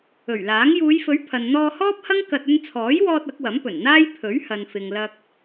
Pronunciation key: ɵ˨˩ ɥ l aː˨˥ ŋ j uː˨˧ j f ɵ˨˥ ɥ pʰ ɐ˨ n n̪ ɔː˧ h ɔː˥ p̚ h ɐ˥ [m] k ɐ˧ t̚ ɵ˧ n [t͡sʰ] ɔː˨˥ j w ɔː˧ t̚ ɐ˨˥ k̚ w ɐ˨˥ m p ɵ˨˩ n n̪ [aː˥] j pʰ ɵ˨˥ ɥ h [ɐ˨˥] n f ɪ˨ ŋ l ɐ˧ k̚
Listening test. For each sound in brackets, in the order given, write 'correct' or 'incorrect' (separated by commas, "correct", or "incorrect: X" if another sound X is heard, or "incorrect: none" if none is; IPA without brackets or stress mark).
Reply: incorrect: ŋ, correct, correct, incorrect: ɐ˨